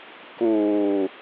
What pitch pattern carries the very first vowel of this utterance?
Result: low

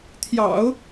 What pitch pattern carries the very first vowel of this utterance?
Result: low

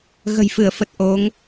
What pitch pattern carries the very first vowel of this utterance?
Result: low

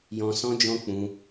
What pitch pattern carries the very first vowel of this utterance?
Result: high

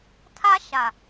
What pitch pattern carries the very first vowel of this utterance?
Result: high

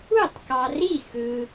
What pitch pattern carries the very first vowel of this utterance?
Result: falling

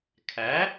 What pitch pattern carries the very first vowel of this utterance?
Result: rising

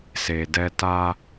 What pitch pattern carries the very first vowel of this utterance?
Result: low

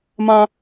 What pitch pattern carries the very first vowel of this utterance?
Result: high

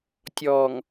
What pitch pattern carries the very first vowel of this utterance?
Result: low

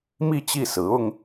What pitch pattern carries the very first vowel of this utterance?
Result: falling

